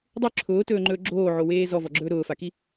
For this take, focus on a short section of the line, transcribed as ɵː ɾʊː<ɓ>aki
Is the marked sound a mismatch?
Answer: yes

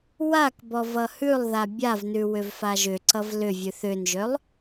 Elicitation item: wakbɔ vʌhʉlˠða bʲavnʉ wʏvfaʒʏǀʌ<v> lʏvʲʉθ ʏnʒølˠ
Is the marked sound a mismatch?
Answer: no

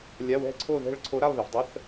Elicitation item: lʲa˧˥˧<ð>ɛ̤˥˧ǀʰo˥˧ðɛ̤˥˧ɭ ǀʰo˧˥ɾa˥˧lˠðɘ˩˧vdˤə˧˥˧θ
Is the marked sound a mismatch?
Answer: yes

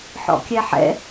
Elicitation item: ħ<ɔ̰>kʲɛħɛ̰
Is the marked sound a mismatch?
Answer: no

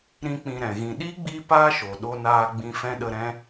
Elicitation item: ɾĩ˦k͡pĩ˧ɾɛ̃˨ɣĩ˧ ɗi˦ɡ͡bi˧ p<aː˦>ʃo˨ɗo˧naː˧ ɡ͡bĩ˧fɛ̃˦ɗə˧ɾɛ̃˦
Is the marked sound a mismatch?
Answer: no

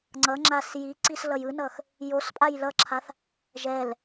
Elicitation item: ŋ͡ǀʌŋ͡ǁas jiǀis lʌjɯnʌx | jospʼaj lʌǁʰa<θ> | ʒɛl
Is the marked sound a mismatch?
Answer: no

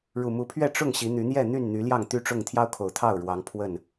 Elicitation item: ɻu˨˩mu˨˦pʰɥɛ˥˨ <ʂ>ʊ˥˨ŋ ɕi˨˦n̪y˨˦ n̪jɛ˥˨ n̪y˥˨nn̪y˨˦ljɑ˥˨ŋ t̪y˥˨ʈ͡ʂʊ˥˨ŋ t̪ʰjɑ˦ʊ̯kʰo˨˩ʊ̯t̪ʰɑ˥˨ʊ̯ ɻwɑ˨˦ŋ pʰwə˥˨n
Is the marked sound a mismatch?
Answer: yes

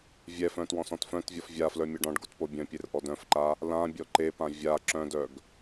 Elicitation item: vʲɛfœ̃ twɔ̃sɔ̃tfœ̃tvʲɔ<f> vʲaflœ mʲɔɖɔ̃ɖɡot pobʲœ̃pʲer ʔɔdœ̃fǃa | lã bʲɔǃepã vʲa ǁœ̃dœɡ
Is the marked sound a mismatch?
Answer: no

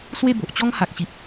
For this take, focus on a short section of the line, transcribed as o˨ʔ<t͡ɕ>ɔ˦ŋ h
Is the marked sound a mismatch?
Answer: no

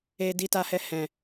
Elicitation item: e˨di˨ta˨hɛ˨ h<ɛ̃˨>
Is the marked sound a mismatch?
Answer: no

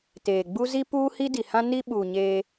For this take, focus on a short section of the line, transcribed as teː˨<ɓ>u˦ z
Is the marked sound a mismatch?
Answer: yes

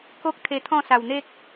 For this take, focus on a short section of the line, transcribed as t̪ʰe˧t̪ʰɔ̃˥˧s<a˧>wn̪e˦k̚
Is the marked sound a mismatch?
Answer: yes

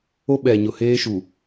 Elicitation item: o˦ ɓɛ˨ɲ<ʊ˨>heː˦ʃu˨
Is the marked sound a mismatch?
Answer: no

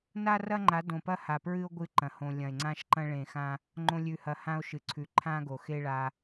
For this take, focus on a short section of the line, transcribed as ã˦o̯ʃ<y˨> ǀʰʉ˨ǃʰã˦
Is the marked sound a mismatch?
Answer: yes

